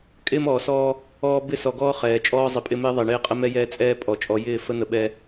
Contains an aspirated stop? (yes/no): no